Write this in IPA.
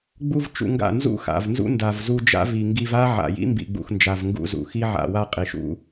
ɡ͡b u˧ v t͡ʃ ṵ˧ ŋ ɡ a̰˦˨ n z ṵ˦ x a̰˨ v n z ṵ˦ n d a˨ v z u˧ d͡ʒ a̰˦ v i˨ ŋ ɡ i˧ v a˦ ʕ a̰˨ j ḭ˦ m b ḭ˨ ɡ͡b ṵ˨ x n d͡ʒ a˨ v ŋ ɡ ṵ˧ z ṵ˨ x i˦ ʕ a̰˨ w a˧ qʼ i˨ ʃ ṵ˦

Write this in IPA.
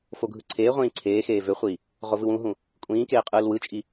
f o ɡʱ ɯ ǀʰ eː ʁʷ ĩː ǀʰ eː x eː v ø χʷ iː | ʁ o v ɯ w ũ ɦ ũ | kʷʼ ĩː k eː qʼ ɯː l w ɯ t͡ʃʼ i

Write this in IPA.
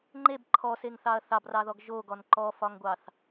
ŋ͡ǃ e b ǃʰ ɔ s e ŋ θ ɑ ɐ̯ θ ɑ b r ɑ ð ɔ ɡ ʒ o ɡ ɔ n ǃ ɔ f ɒ ŋ ɡʷ ɑ θ

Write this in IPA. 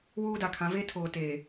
w uː˦ d a˨ kʰ ã˨˦ v e˦ tʰ oː˨ t eː˨

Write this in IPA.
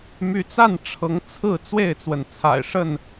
m y˨˦ t͡s a˥˨ n ʈ͡ʂʰ ɤ˨˦ ŋ t͡sʰ ɹ̩˥˨ t͡s w e˥˨ ɪ̯ t͡s w ə˩ n t͡sʰ a̰˨˩ ɪ̯ ʂ ə˥˨ n

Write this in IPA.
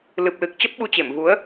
l ɨ˨˩ p̚ l ɨ˨˩ k̚ t͡ɕ ə˦˥ p̚ ɓ u˧ t͡ɕ e˧˩ m v u˨˦ ə̯

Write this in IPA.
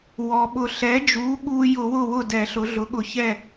w ɔ˩ ɓ ʊ˧˩˧ ɬ ɛ˩˥ d͡ʒ u˩˥ ɠ u˧ j ʊ˧˩˧ w ʊ˥˩ w ʊ˥˩ d ɛ˧˩˧ ɬ ʊ˩˥ ɮ ʊ˩˥ ɠ ʊ˧˩˧ ç ɛ˥˩

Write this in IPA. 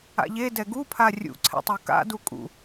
a̰ ʎ e d ɛ ɡ u pʰ a rʲ ṵ ǀʰ ɛ̰ tˤ o k a̰ d u kʼ ṵ

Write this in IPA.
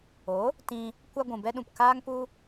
o˨˦ | t ĩ˧ | kʷ a˧ ɡʷ ũ˨ b ɛ˧ ɗ ũ˨ p k aː˦ ŋ p u˦

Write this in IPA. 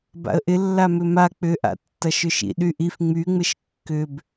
b a̰ ə̯ ʔ ɪ lː a m ʏ m a k͡p ʏ ʔ a̰ tː ɐ ʃ ʏ ʃ ḭ ɗ y ʔ i f ŋ͡m y ŋ͡m ɪ ʃ kː ʏ b

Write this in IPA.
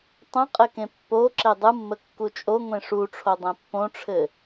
tˤ ə̃ qʼ ɘ k ẽ pː o ǁ e dˤ ɯ mː ə kː u t͡ʃʼ o ŋʷ ẽ ʂ u ʈ͡ʂʰ o dˤ ẽ pː õ ʈ͡ʂʰ ɘ

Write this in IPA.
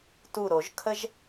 t u˧˩ ɾ o˨˩˦ ʒ kʰ ə˥ ʒ

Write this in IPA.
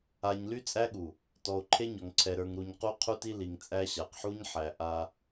a˨ ɲ l y˦ t͡sʼ æ˦ ɠ u˨ | t ɔ˨ o̯ ǃʰ e˦ ɲ ɔ˨ ŋ ǀʰ ɛ˨ ɾ ə˞˨ ŋ ɾ u˨ ɲ q u˦ qʰ u˦ t i˦ l i˨ ŋ t͡sʼ æ˦ ɕ a˨ q ħ u˦ ɲ ħ æ˨ ʔ a˦

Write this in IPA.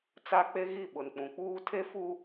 t͡s a˦ k͡p e˦ ɣ i˦˨ ɓ ʊ˨ n k͡p ũ˨ k͡p uː˦ tʰ e˦ f u˦

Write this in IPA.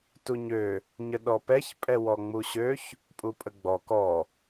t u ɲ ø | ɲ ə ɗ ɔ p ɛ ç pʼ ɛ w ɔ ŋ͡m u ɕ ø ç | pʼ u pʼ ə ɡ͡b ɔ k ɔ

